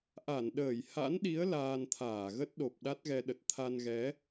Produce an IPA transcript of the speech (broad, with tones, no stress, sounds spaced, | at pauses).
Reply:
ʔ a˧˩ n ɗ əː˧˩ j h a̰˧˥ n ɗ i˨˦ ə̯ l aː˧ n t̪ʰ aː˧˩ ɣ ə˦˥ t̚ ɗ o˨˩ p̚ ɗ a˦˥ t̚ ɣ ɛ˧ ɗ ə˨˩ t̚ t̪ʰ a˧ n ɣ ɛ˨˦